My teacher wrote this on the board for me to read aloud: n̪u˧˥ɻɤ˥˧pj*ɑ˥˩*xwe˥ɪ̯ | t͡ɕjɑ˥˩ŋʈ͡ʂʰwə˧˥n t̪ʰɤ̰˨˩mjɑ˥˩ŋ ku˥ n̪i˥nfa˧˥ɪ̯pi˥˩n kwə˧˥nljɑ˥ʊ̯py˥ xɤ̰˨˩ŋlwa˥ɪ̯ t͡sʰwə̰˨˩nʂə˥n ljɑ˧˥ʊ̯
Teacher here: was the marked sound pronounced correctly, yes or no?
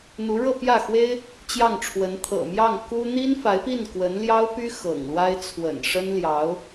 no